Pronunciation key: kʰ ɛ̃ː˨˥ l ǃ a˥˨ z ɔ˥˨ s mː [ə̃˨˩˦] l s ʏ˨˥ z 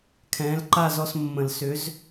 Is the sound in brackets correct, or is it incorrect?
correct